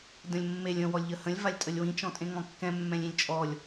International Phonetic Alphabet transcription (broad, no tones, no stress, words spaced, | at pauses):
də̃lʲmːelʲ ə̃ wɔlʲʎəhə̃lʲ valʲtʼəlʲwĩ t͡ʃɔ̃tʼẽŋɔ̃kːɛ̃ mːɛ̃lʲĩlʲt͡ʃʼɔlʲ